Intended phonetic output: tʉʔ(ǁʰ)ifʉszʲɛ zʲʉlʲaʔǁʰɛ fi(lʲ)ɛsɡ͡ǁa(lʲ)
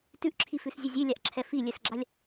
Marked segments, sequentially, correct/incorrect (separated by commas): correct, correct, correct